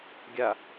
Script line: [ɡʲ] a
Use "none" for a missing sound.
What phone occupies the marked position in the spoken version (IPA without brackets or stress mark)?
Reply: ɡʲ